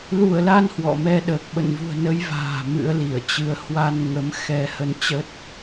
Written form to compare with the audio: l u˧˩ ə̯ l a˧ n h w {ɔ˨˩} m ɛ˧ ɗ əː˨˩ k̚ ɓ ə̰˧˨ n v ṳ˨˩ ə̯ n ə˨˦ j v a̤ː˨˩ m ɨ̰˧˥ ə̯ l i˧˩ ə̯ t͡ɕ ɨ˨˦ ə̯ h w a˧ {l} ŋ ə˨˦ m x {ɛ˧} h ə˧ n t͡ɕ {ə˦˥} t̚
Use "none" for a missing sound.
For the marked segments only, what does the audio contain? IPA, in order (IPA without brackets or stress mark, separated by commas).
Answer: ɔ̰˧˨, n, ɛ˧, ə˦˥